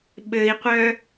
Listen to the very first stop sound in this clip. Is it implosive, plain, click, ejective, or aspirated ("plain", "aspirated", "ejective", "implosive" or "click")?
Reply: implosive